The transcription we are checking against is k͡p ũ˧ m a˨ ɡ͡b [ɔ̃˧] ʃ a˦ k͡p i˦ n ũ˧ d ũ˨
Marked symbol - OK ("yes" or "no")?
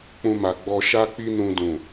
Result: no